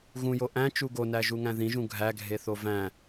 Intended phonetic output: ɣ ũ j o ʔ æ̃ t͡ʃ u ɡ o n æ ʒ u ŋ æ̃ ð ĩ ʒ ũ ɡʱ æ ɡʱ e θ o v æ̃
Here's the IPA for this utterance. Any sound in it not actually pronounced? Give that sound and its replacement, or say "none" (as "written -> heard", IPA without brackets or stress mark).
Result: none